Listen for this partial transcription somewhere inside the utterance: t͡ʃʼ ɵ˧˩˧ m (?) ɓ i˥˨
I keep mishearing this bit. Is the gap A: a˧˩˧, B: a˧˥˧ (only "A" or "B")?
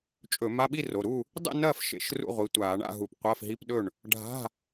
B